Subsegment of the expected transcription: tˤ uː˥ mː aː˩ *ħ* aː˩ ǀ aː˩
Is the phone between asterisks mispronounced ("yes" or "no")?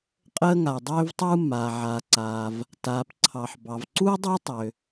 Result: yes